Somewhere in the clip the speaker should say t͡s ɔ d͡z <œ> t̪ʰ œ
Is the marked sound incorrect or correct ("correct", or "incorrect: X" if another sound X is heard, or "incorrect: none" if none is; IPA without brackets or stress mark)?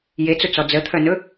incorrect: ə